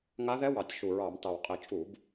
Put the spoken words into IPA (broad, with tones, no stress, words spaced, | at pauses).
ŋa˦˥ ðɛ˦˥wɑ˨˩tʲ ʃu˨˩ɹɑ˧˩˧mtɑ˨˩wqʼi˧˩˧ t͡ʃʼu˧˩˧b